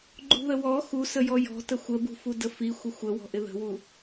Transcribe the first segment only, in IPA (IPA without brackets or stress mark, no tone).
ɡ͡ǃ